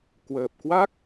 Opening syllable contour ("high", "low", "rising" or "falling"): low